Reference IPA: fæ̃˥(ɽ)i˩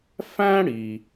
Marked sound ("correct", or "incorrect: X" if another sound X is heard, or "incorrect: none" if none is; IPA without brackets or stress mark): correct